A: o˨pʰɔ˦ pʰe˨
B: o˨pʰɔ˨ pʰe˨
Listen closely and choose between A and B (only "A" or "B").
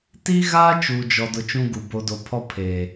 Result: A